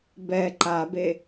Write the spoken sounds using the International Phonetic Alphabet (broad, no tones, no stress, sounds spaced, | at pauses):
b ɛ ǃ a b e